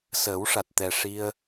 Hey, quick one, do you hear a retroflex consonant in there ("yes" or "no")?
yes